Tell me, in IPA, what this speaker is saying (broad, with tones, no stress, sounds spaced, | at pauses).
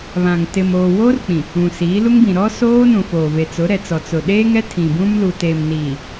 β ã˨ ŋ t ɪ˨ m oː˨ w oː˦ r k͡p ĩ˨ | ũ˨ s iː˨˦ l u˦ ŋ b ĩ˨ ɾ ɔ˦ s oː˦ n ũ˨ f oː˨ v e˨ t͡s ʊ˨˦ ɾ ɛ˨ t͡s ɔ˨ t͡s ʊ˨ ɗ eː˦ ŋ ɛ˦ tʰ ĩ˨ b ũ˦ m l u˨ t eː˨ m n iː˨